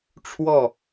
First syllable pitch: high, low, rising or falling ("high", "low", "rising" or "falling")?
falling